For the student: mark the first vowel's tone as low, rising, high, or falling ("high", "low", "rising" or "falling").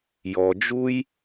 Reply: low